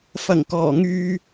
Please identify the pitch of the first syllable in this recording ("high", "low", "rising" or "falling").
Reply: low